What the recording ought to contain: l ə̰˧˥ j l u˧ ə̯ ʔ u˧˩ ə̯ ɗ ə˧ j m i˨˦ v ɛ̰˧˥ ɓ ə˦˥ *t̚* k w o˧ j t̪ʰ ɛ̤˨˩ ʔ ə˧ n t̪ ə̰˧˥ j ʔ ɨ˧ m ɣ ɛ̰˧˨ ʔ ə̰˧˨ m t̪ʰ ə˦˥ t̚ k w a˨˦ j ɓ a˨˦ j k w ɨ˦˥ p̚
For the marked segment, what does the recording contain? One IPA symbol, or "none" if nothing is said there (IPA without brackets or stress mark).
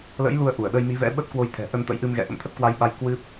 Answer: t̚